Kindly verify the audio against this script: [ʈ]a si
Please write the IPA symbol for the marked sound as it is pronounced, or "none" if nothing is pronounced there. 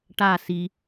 ʈ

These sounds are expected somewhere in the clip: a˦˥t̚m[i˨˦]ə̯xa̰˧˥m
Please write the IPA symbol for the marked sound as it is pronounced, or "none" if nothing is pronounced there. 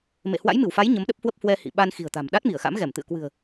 i˧˩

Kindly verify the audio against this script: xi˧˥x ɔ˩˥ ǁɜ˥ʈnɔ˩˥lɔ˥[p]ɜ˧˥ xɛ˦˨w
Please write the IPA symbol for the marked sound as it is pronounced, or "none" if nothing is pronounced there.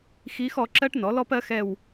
p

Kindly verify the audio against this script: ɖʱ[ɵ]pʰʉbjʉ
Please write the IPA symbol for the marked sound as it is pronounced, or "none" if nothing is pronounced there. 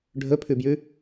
ɵ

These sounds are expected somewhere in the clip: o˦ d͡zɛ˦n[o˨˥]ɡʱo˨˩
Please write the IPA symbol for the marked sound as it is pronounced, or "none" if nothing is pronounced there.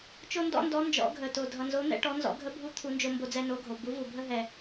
o˨˥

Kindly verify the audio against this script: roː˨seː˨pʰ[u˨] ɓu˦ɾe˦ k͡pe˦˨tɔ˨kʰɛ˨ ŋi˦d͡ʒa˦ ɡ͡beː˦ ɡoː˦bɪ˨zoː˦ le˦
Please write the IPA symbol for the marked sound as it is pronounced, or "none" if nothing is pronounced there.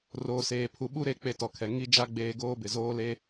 u˨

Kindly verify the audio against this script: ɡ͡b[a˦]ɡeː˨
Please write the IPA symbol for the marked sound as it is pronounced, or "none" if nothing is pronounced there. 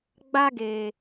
a˦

